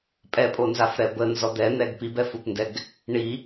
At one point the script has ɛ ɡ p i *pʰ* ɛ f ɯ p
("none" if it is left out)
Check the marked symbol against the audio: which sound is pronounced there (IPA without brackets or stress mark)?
b